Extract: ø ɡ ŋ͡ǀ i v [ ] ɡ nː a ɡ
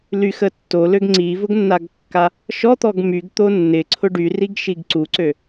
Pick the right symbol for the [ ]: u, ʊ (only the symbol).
ʊ